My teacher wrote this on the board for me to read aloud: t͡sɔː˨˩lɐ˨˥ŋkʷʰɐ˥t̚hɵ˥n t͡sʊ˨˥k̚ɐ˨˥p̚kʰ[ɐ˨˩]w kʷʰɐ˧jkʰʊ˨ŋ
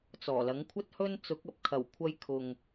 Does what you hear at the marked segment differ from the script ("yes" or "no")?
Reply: no